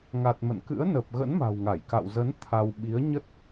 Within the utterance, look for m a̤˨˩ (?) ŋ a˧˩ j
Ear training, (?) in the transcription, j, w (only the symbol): w